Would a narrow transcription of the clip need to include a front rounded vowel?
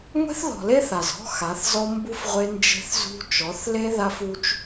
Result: no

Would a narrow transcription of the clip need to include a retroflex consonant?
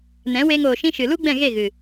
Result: no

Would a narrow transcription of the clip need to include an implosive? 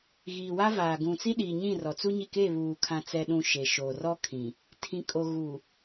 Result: yes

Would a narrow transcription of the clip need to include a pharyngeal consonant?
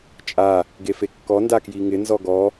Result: no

